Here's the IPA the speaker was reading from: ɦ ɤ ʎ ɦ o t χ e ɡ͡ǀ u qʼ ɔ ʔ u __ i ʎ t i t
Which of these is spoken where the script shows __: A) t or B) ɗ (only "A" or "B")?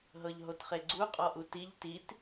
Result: A